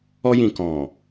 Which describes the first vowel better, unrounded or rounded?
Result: rounded